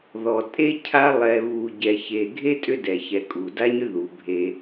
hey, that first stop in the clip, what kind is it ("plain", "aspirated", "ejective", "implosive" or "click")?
ejective